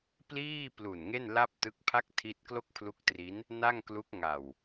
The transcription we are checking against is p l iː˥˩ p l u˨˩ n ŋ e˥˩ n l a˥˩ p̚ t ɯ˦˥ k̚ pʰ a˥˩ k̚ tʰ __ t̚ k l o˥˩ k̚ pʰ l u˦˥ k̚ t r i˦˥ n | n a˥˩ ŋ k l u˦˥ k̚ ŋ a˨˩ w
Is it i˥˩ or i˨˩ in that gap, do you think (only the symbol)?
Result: i˥˩